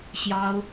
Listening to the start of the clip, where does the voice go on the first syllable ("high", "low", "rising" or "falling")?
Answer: high